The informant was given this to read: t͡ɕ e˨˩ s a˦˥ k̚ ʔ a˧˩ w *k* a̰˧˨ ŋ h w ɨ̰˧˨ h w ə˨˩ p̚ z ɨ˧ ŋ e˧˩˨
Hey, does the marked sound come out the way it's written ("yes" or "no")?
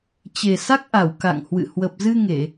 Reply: yes